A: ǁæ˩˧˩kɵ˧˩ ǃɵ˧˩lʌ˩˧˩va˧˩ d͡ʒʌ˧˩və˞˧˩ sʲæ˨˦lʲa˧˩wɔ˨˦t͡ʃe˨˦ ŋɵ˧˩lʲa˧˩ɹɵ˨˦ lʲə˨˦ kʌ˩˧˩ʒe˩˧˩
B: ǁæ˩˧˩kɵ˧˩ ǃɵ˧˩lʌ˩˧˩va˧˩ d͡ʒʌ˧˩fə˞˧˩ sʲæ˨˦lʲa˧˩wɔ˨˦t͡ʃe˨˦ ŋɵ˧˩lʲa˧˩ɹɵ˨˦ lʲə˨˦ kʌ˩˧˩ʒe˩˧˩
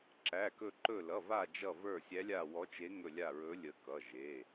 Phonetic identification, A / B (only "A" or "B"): A